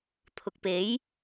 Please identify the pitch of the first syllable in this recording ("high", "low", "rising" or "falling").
low